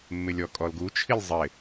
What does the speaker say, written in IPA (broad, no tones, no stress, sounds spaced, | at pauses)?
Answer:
mː ɪ lʲ ɔ kʼ ɔ l ɡ u t͡ʃʰ i lʲ zˤ ɪ